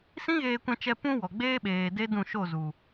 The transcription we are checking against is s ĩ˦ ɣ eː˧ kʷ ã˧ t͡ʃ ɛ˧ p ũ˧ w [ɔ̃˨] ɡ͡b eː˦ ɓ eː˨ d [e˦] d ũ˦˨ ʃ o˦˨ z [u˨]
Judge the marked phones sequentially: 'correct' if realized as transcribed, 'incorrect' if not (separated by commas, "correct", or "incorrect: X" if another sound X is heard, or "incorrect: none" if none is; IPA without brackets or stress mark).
incorrect: ɔ˨, correct, correct